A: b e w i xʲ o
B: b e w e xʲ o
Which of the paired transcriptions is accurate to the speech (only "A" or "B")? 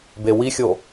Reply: A